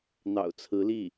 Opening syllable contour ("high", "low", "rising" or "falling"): low